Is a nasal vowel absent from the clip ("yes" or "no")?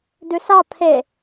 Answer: yes